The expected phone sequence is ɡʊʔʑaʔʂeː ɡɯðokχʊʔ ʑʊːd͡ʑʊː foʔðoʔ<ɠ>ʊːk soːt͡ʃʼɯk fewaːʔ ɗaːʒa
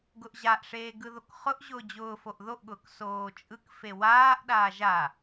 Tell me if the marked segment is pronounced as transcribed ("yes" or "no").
yes